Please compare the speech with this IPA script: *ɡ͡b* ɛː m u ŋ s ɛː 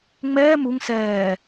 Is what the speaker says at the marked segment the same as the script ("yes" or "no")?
no